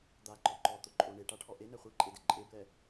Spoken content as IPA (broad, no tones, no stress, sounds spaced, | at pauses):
d̪ a ǃ ɔ ǃ ɔ t̪ ʊ ǃʼ o ɳ e ʈ a ʈʰ ɔ ʔ e n ɛ χʷ i ǃʼ e d ɪ ǃʼ e b l ɛ